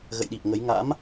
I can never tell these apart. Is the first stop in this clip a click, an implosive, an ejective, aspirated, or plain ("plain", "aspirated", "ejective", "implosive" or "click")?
implosive